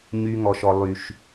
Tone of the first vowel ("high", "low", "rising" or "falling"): high